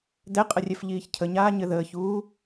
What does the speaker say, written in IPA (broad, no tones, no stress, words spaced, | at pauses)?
dɛqʼərʲɛf ʎiːçcʰəɲaː ɲɘðəːçuː